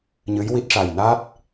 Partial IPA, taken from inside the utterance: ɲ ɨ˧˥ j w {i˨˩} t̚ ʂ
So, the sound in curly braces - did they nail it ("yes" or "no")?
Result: no